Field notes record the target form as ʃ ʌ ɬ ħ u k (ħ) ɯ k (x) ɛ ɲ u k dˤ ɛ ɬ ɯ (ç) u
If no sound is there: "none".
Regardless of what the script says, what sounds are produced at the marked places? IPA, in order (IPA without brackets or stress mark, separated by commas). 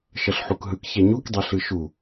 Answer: ɦ, ç, ʃ